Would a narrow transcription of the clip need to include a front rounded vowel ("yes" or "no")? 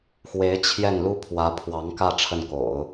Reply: no